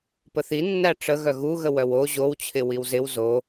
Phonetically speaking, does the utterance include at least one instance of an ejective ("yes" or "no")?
no